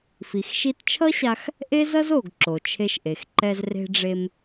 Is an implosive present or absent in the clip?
absent